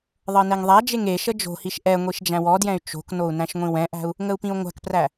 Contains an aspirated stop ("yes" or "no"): no